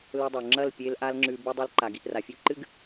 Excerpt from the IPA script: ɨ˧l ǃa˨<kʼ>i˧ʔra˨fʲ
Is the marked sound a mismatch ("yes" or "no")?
yes